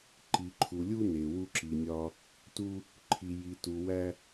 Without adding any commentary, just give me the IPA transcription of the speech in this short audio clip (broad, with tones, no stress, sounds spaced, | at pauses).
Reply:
ǃ i˨ ǃʰ u˨ lʲ u˦ n e˨ w u˦ ǁ i˨ nʲ ɒ˦ | t u˦ | ǃʰ i˨ j i˨ t u˨ w æ˦